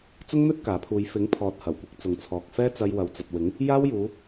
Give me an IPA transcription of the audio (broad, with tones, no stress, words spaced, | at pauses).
t͡sʊ˥ŋn̪ɵ˥t̚ kaː˨˥pʰuː˧j fɪ˨˥ŋ pʰɔː˨t̚hɐ˨˩wkʷɪ˧k̚ t͡sʊ˨ŋt͡sʰɔː˨k̚fɛː˥ t͡sɐ˧jwɐ˨wt͡sɐ˨t̚wɪ˨˥ŋ | jaː˥wjuː˨˧